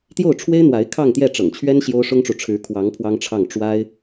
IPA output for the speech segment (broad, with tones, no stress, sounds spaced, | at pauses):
t̪ j o˥˩ ʊ̯ ʈ͡ʂʰ w e˥ ɪ̯ n̪ w a˧˥ ɪ̯ kʰ ɑ˥˧ ŋ t̪ j ɛ˥˩ ʈ͡ʂ ɤ̰˨˩ ŋ t͡ɕʰ ɥ ɛ˥ n ɕ j o˥ ʊ̯ ʂ ʊ˥ ŋ ʈ͡ʂ u˨ ʈ͡ʂʰ ɻ̩˧˥ kʰ w ɑ˧˥ ŋ pʰ w ɑ˥ ŋ ʈ͡ʂʰ ɑ˥˩ ŋ ʈ͡ʂ w a˥ ɪ̯